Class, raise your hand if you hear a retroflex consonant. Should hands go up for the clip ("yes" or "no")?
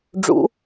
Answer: yes